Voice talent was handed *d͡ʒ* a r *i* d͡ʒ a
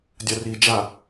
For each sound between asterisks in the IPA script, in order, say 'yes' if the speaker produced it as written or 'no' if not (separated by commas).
no, yes